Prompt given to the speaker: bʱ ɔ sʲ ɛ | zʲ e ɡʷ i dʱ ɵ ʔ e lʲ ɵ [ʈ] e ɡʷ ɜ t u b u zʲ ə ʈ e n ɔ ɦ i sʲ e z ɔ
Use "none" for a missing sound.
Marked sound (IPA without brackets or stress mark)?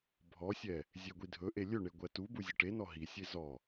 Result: ɳ